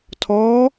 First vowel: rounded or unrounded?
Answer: rounded